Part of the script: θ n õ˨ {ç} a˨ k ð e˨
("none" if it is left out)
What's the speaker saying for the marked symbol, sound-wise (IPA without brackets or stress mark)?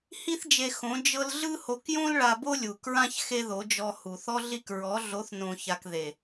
ç